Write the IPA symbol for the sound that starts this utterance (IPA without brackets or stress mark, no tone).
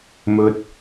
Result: m